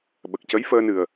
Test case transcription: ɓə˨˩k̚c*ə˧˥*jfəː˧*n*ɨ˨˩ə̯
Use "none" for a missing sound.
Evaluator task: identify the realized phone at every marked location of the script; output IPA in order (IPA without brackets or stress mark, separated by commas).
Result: ə˧˥, n